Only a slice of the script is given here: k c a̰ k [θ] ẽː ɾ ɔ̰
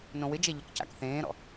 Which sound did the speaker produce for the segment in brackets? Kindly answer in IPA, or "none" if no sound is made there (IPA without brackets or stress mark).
θ